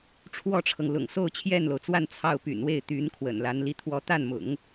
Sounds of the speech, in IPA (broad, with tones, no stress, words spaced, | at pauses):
ʈ͡ʂʰwɔ˥˩ʈ͡ʂʰɤ˩ŋlʊ̰˨˩ŋ so˥˧ʊ̯t͡ɕʰjɛ˥˩nlo˩ʊ̯t͡swa˥˧n t͡sʰɑ˥˩ʊ̯ py̰˨˩nwe˥˩ɪ̯t̪y˧˥nkʰwə̰˨˩n la˧˥nli˥t̪ʰwɔ˥ t̪a˥˩nmʊ̰˨˩˦ŋ